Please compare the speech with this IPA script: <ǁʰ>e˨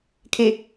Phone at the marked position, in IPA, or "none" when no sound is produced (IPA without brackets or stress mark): kʰ